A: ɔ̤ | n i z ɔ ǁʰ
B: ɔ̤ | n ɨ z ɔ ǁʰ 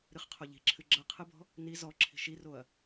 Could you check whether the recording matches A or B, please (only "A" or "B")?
A